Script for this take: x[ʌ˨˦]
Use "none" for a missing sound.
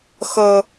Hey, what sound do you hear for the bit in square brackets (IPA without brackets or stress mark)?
ʌ˦